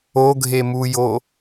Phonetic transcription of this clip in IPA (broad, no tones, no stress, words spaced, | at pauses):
oɡʱemujo